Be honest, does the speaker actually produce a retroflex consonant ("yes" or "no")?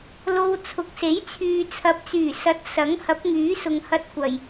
no